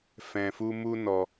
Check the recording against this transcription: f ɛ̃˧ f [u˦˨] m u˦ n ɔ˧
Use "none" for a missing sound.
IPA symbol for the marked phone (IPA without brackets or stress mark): u˦